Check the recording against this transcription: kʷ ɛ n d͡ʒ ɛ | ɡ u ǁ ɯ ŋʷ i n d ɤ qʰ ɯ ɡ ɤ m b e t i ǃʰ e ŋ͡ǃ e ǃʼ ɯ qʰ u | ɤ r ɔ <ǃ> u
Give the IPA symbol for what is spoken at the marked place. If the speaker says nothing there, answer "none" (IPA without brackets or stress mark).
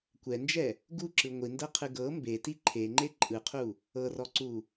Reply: ǀ